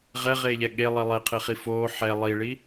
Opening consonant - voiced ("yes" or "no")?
yes